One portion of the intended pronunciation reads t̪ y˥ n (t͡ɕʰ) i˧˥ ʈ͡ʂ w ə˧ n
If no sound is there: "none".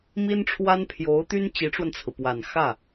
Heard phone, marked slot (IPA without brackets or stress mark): t͡ɕ